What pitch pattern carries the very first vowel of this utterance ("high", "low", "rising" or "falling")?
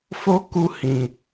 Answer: high